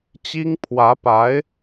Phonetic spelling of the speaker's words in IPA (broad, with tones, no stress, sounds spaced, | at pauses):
t͡ɕ i˥ ŋ pʰ w ä˧˥ p a˧˥ ɪ̯